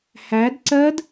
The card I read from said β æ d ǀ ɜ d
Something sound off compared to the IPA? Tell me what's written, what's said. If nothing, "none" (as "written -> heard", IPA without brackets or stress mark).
β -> h